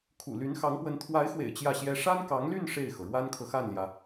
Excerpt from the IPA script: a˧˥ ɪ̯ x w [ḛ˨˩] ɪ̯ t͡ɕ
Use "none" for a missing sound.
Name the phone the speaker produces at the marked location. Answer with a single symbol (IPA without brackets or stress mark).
ḛ˨˩